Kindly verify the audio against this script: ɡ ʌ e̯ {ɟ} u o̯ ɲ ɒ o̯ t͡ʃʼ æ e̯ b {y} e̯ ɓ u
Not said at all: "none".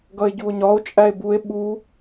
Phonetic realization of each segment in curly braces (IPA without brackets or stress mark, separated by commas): ɟ, u